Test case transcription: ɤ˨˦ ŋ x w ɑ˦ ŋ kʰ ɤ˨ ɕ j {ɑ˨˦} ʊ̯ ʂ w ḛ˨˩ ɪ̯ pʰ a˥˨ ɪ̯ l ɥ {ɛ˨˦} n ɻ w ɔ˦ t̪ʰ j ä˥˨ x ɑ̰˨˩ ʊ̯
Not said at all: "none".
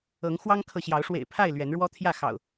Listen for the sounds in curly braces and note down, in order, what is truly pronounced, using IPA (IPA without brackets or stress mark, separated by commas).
ɑ˨˦, ɛ˨˦